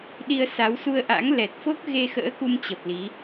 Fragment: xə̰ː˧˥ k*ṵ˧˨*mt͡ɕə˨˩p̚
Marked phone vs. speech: incorrect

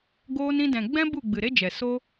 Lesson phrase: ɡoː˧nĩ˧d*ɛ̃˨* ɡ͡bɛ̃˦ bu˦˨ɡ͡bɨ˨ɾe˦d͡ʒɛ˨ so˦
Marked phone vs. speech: correct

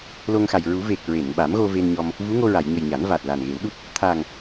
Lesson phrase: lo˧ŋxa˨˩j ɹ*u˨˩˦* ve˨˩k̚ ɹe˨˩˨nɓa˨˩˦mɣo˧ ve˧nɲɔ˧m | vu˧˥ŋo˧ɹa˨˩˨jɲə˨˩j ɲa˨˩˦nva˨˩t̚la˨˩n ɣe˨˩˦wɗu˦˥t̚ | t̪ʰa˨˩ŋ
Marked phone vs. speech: correct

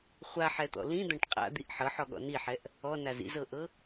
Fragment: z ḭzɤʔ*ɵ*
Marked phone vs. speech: incorrect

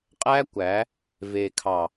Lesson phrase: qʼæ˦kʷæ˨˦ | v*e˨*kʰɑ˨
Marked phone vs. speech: correct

